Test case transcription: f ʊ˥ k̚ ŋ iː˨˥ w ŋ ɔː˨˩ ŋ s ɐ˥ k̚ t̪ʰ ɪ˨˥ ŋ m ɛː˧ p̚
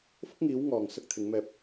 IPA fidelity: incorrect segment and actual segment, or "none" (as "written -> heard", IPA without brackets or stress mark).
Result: none